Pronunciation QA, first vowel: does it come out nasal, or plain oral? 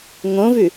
nasal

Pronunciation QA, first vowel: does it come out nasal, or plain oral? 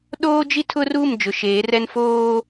oral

